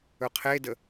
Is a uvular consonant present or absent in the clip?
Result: present